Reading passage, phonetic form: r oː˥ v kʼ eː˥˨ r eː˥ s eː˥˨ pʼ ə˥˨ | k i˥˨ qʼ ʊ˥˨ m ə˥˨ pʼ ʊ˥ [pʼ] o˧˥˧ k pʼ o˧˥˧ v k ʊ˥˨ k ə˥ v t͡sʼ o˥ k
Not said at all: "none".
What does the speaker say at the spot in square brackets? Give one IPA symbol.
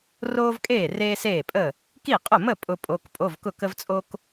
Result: pʼ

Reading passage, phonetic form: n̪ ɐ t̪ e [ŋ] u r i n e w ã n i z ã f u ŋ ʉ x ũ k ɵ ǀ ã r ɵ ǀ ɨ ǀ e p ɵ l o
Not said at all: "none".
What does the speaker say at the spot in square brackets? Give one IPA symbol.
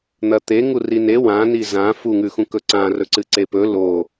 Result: ŋ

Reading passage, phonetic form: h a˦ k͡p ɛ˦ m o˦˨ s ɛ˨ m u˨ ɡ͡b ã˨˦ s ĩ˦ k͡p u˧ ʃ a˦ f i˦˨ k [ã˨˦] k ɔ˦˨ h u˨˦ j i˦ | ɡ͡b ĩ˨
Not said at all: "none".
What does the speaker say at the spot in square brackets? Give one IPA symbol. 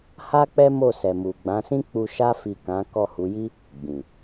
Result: ã˨˦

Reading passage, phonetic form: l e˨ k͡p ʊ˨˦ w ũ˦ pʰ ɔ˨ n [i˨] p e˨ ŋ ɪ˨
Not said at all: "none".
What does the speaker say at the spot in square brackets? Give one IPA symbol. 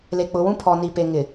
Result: i˨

